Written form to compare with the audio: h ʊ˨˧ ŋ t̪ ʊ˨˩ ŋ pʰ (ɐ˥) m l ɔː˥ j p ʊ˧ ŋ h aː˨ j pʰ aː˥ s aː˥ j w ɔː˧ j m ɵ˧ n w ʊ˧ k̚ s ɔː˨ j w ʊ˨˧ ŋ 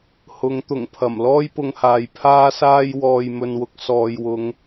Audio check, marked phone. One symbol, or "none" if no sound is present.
ɐ˨˩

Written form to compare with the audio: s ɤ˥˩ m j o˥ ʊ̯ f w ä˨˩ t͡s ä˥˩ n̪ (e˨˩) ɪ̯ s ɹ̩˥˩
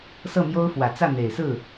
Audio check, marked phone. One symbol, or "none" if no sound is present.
e˨˩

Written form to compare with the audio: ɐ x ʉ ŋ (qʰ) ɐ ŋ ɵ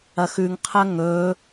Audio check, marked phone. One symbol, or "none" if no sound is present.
qʰ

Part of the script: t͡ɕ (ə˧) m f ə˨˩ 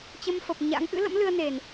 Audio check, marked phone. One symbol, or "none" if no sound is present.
ə˧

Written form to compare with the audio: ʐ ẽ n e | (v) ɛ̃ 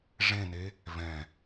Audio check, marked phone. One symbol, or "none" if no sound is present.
v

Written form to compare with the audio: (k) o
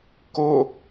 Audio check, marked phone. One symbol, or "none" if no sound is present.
k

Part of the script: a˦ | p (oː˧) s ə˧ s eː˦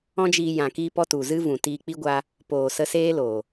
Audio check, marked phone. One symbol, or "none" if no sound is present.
oː˨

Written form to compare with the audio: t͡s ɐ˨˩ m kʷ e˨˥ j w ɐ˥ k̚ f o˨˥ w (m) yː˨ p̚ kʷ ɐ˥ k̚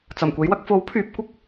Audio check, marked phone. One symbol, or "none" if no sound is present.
pʰ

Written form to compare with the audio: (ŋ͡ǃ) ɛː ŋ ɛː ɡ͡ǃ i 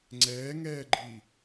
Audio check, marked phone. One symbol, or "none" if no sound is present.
ŋ͡ǀ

